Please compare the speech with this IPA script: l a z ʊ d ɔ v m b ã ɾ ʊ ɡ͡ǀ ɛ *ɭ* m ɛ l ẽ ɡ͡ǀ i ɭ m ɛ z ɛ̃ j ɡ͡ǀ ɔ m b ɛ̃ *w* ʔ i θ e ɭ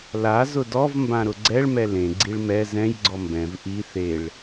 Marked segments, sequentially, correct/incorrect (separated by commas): correct, incorrect